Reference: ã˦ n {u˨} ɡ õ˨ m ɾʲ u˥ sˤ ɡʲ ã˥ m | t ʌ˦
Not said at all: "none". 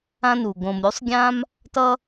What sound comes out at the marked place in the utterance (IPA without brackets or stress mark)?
u˩